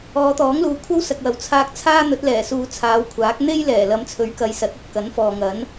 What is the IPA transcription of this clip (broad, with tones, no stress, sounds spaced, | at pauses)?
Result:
ɔː˨˧ t̪ ɔː˨˥ ŋ l uː˨ kʷʰ ɐ˥ w s ɐ˨ k̚ w ɐ˨˩ w t͡sʰ aː˧ k̚ t͡sʰ aː˥ n̪ ɵ˨˥ t̚ l ɛː˨˩ s uː˨ t͡sʰ aː˨˧ w kʷʰ aː˨˥ k̚ n̪ e˥ j l ɛː˨˩ l ɐ˨˧ m t͡sʰ ɵ˨˥ ɥ k ɐ˨˧ j s ɐ˨˥ t̚ ɐ˧ t̚ k ɐ˨˥ n f ɔː˨ ŋ ɐ˨˥ n